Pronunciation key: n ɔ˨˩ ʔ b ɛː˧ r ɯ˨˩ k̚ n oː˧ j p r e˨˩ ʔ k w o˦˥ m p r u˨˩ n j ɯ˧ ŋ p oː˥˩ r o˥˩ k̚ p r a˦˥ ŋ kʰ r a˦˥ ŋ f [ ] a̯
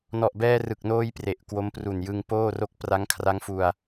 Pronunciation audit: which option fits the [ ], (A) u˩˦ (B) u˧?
B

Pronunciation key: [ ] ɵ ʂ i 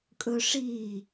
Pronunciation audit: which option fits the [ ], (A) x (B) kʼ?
B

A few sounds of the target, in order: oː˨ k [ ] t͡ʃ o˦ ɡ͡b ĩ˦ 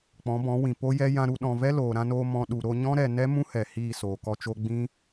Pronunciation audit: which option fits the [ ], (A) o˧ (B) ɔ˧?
B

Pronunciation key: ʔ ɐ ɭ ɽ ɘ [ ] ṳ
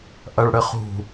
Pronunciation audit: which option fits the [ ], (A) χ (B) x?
A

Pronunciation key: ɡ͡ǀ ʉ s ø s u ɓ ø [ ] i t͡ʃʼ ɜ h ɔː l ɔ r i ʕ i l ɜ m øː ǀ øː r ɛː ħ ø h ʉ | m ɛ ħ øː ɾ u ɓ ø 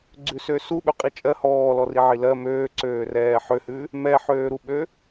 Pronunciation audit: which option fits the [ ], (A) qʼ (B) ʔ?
A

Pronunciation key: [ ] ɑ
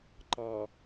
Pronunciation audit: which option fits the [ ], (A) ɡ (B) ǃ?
B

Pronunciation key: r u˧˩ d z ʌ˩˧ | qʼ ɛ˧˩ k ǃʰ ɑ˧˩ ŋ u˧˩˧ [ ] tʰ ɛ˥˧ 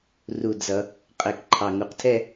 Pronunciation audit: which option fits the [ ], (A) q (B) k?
A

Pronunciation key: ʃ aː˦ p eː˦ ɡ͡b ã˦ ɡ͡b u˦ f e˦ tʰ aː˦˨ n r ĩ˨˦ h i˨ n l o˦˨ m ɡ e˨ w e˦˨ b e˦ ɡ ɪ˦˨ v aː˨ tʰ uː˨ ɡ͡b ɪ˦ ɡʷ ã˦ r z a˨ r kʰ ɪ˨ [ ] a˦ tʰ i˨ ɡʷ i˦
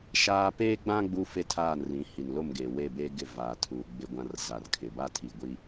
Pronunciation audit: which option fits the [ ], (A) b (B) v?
A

